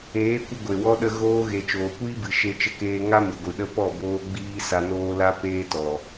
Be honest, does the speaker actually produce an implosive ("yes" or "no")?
yes